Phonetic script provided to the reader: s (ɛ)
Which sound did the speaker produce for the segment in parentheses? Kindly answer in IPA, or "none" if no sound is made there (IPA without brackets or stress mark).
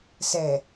ɛ